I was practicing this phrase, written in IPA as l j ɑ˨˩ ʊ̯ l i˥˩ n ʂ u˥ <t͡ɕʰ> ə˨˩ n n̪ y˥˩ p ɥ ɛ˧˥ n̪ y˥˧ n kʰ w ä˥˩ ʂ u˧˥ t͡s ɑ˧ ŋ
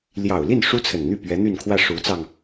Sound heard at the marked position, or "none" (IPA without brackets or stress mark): t͡sʰ